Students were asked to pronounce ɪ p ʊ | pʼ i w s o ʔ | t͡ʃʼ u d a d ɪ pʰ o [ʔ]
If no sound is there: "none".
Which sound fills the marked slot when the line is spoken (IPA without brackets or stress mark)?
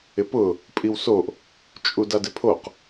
q